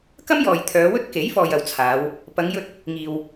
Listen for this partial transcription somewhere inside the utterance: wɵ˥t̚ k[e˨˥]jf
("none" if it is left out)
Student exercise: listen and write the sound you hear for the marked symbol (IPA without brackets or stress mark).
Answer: e˨˥